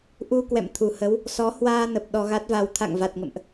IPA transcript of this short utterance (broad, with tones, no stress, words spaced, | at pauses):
ʔu˧kwɛ̰˧˨mt̪ʰu˧˩ hə˨˦w | sɔ˨˦hwaː˧nə˨˩p̚ ɗɔ˧ɣa˦˥t̚va˧w t̪ʰa̰˧˨ŋva˨˩t̚ŋə̰˧˨mʔ